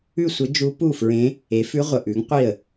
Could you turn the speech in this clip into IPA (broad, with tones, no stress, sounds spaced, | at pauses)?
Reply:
ʉ˥˩ sʷ ə˧˥ d͡ʒ u˧˥ p u˥˩ f ɹ ẽ˧˥ | e˩˥ f ʉ˧˥ ʁʷ ə˨ ʔ ʉ˩˥ ŋ qʷ i˥˩ ə̯